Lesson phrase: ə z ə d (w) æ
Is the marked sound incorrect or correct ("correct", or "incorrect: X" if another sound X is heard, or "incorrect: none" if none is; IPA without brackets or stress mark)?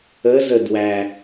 correct